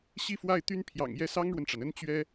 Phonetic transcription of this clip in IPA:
ɕi˥˧fwa˥˩ɪ̯ t̪y˥n pʰjɑ̰˨˩ŋjɛ˥˩ sɑ˥ŋɻwə˨nʈ͡ʂa˩nə˥n t͡ɕɥɛ˥

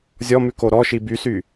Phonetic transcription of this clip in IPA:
zʲɔmʉko ɾɔʃi bysy

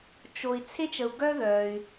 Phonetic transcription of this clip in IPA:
t͡ʃo˨i̯ t͡sʰe˥t͡ʃə˨u̯ ɡœ˥ðœ˩y̯

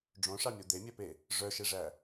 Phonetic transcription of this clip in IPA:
ɖ͡ʐõʂɑmʲo d̪emʲœpe | ʐœʃeʐæ

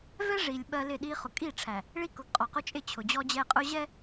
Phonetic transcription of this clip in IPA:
vɛ˦ʐi˨lʲ ɓɜ˦lɪ˦˨ ɗi˦ χʊ˨kʼi˦˨ʈ͡ʂʰæ˨ | ɭi˦kʊ˨ɡqʼɔ˨qʊ˦ t͡ʃʼɪ˦˨t͡ɕʰʊ˨d͡ʑɔ˦d͡ʑɛ˦ qʼʊ˦ ʑɛ˦

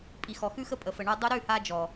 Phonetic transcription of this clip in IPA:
pʼi˨xɔ˨xʉ˦xə˦ pʼə˨fə˨ɳə˞˧ dˤu˧ɾʉ˦˨ha˧ d͡ʒɔ˨

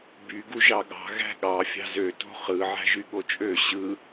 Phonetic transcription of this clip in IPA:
by ɡuʒɑɠɑ̤ ɣæ̤ɠɑ fʲɑ̤zø to̤χɯ ʕæ̤ʒyɠot͡ʃʼø ɕɯ

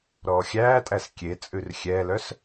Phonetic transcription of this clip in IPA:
ɾɔːxʲæːtʼæs kʲet͡sʼʉr xʲɛlœs

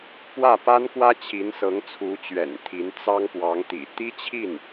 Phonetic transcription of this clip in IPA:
pwä˥˩pa˥nkwä˥ t͡ɕʰi˧˥nsɤ˧˥ŋt͡sʰu˧˥t͡ɕɥɛ̰˨˩n t̪ʰi˧˥n t͡sɑ˥ŋpwɑ˧˥ŋt̪ḭ˨˩ t̪i˥t͡ɕʰi˥˩n

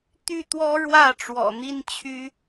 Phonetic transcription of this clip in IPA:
t̪y˥˩t̪wɔ˥ ɻwä˥˩ ʈ͡ʂwɔ̰˨˩n̪i˥nt͡ɕʰy˥

